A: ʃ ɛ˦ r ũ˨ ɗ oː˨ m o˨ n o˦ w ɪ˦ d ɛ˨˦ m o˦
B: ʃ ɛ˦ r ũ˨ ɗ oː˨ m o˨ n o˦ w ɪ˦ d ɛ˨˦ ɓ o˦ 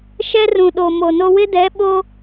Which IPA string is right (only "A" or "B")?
B